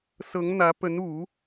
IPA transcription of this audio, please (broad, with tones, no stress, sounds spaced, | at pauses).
s ɤ˧˥ ŋ n̪ ä˧˥ p ə˧˥ n u˨˩˦